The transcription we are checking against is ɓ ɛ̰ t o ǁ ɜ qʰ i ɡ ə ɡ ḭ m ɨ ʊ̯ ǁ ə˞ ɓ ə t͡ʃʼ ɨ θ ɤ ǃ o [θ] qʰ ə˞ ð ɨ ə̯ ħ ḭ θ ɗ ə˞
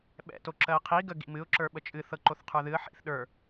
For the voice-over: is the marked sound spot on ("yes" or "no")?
yes